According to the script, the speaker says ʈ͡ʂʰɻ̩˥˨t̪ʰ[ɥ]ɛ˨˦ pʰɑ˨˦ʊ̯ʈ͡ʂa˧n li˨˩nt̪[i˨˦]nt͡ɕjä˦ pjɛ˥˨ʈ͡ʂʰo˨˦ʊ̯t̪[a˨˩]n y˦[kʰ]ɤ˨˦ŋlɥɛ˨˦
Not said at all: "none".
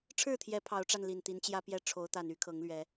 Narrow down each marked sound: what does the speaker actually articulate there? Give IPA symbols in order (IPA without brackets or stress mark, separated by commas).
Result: j, i˨˦, a˨˩, kʰ